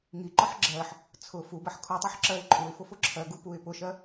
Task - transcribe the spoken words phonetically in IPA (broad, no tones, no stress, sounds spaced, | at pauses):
ŋ i ǃ ɒ ħ ɡ͡ǁ ɜ ħ | t͡sʰ ʊ f u b ɜ ħ kʰ u tˤ u ħ ǁ ɜ ɪ̯ ǃʼ u ɪ̯ f ʊ f ʊ ǁʰ ɜ ɡ u p u ɪ̯ p ʊ ʃ ɜ